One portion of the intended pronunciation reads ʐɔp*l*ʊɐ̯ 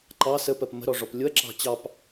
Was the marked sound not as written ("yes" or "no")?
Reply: yes